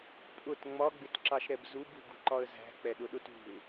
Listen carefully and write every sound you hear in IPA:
pʼ ʊ t ŋ͡m ɒ ɡ͡b ɪ t ǁ ɑ ʃ ɾ ɛ b z u b ṳ ɡ ṳ ǃ ɒ ə̯ z æ̤ k͡p ɛ ɗ ʊ ɗ ʊ t ṳ ɪ̯

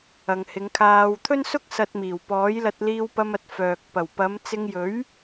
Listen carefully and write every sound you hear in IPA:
ɐ˨ ŋ h ɪ˨˧ ŋ kʰ aː˧ w t̪ʰ ɵ˥ n s ʊ˥ k̚ s ɐ˧ t̚ m iː˨˩ w p ɔː˨˥ j l ɐ˧ t̚ l iː˧ w p ɐ˧ m ɐ˨ t̚ f œː˨ k̚ p ɐ˨˩ w p ɐ˨˧ m t͡s ɪ˧ ŋ j ɵ˨˥ ɥ

